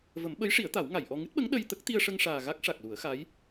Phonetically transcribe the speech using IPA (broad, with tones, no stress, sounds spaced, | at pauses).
v ə˨˩˦ m ɓ ə˧˥ j ʂ i˨˩˦ ə̯ t̪ a˨˩˦ w ŋ a˨˩˨ j ʔ ɔ˧ ŋ ɨ˦˥ t̚ ɓ ə˧˥ ŋ ɗ ə˧ j t̪ ə˦˥ k̚ t̪ i˧ ə̯ ʂ ə˧ ŋ ʂ aː˨˩ ɣ a˦˥ k̚ ʂ a˨˩ k̚ l u˨˩˦ ə̯ x a˧˥ j